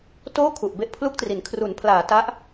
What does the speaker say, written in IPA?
t oː˥˩ kʰ u˨˩ ʔ b e˥˩ ʔ pʰ l u˥˩ k̚ t r i˩˦ n kʰ r u˩˦ n pʰ l aː˩˦ t a˦˥ ʔ

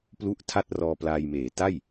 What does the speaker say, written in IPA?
p l u˥˩ ʔ tʰ a˥˩ t̚ r ɔː˧ p l aː˧ j m eː˩˦ t a˥˩ j

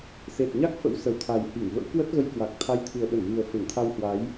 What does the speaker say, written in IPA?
s e˨˩ t̚ ɲ a˦˥ k̚ f ə̰˧˥ w s ə˨˩ w t̪ʰ a˨˩ j h i˧˩ ŋ v ə̰˧˥ w k w ə˦˥ t̚ ɣ ə˧ j k w a˨˩ k̚ t̪ʰ a˨˦ j t̪ʰ ɨ˨˩ ə̯ ɓ ə˧˩ n v ɨ˨˩ ə̯ f e˧˩ ŋ t̪ʰ a˧ w h w a˨˦ j

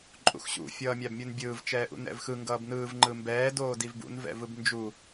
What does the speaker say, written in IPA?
ǃʼ ṵ x ɕ ṵ fʲ ʌː mʲ a b mʲ u n bʲ ɯː v t͡ʃ ɛː ʔ ṵ n ɛ̰ v x ɯ ŋ ɡ ʌː b n ɯː v ŋ͡ǃ ɯ m b ɛː d oː d i v b ṵ n v ɛ̰ v ɯ b n d͡ʒ u

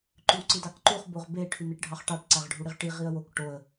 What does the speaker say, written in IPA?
ǃ y w ǀ i d ɑ k ǃ u χ b o ʁ b e ʈʰ y n̪ e ʈ ɖʱ ɑ χ ʈ ɑ ʈ ǀ æ ʁ ɖʱ u ɽ i ʁ ʈ i ʁ i ə̯ w o k ʈ o ə̯

